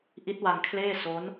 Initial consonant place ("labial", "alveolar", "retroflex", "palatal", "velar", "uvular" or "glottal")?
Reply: glottal